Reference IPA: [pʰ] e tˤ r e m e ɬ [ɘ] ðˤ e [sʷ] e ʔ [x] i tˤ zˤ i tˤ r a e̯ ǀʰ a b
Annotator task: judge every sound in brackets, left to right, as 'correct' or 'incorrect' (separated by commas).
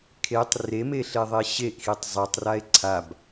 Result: incorrect, incorrect, incorrect, correct